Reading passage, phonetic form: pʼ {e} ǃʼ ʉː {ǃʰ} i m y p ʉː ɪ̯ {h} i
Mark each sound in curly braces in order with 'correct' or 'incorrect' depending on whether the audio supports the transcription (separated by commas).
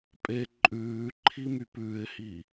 correct, correct, correct